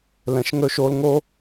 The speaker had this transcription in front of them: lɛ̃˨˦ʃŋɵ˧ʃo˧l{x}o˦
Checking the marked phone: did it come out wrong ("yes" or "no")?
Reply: yes